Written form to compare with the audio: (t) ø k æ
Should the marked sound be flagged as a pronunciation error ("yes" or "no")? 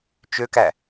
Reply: yes